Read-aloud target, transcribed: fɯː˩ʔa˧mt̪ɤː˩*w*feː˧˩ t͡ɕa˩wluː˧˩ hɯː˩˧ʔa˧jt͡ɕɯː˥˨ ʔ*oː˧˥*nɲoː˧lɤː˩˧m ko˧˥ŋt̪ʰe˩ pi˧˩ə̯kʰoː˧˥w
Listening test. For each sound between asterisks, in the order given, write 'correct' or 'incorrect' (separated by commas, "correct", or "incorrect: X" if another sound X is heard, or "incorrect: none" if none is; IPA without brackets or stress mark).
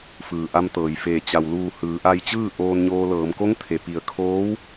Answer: incorrect: j, incorrect: oː˧